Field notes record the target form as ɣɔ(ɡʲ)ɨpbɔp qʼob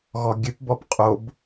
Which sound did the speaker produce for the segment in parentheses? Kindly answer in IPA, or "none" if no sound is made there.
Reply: ɡʲ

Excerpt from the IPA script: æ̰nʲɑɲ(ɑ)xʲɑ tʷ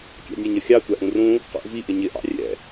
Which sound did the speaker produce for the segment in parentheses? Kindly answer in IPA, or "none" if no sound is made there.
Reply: ʌ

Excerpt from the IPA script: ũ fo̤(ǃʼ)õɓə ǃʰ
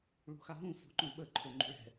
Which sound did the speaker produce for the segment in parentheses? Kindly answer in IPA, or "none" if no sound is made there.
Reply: ǃ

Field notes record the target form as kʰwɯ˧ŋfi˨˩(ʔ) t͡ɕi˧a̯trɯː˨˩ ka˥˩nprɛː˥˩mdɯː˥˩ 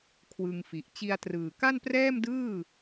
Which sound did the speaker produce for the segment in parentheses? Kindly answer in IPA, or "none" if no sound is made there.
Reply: ʔ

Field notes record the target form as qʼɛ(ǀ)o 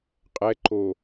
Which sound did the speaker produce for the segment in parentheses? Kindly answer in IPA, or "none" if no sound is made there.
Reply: ǃ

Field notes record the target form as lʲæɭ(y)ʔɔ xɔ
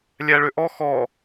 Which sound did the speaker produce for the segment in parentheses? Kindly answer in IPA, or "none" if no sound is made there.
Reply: ʏ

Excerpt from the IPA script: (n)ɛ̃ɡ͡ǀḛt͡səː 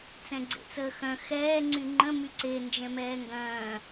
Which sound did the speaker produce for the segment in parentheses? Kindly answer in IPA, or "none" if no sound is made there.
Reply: t͡s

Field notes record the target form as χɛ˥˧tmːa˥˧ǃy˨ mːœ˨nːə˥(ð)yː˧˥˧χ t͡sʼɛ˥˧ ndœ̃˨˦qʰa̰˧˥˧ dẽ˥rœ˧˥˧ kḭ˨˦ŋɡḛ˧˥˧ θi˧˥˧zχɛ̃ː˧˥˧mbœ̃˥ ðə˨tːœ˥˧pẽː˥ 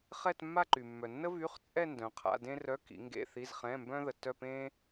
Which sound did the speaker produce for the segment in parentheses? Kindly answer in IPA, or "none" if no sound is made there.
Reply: v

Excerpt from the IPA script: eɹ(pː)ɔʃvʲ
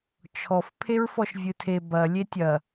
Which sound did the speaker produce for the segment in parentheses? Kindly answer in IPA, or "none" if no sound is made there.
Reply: f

